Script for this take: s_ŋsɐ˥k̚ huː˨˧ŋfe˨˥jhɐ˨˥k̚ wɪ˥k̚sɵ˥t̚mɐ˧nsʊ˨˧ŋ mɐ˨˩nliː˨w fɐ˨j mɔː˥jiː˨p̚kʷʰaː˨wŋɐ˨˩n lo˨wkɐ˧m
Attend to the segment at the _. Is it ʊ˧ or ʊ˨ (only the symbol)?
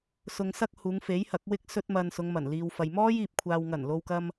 ʊ˧